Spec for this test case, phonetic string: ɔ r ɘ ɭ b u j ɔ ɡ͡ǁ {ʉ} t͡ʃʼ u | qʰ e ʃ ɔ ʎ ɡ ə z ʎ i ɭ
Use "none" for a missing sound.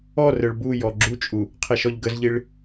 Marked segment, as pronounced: u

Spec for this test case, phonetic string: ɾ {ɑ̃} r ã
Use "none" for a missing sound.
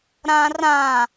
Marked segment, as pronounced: ã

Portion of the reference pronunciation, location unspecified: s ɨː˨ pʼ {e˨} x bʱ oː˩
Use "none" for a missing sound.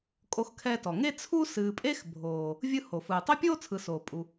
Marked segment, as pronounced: e˥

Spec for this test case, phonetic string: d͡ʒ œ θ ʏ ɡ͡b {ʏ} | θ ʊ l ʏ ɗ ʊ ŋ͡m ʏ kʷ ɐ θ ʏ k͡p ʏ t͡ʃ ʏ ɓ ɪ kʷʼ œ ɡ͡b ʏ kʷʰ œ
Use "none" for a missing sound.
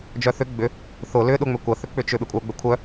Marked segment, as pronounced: ʏ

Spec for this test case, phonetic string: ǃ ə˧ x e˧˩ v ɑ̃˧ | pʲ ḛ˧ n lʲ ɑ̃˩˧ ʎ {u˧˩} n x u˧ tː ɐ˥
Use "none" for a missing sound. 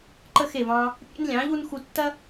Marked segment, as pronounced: u˧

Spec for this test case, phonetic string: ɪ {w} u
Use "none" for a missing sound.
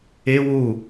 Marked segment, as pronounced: w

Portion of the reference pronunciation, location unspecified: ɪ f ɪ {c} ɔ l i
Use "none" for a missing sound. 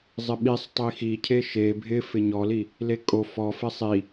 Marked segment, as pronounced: ɲ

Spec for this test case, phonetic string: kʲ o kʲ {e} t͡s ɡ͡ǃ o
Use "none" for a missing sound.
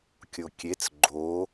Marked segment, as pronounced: e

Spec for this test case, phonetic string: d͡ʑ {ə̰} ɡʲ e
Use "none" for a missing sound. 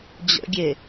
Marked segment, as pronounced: ə̰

